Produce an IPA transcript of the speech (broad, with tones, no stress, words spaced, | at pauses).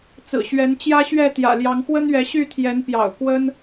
t͡sɹ̩˨˩ɕɥɛ˨˦n t͡ɕjä˦ɕɥɛ˥˨t̪jä̰˨˩ljɑ˨˦ŋ xwə˦nɥɛ˨˦ɕy˥˨t̪ʰjɛ˨˦n pjɑ̰˨˩ʊ̯kwə˦n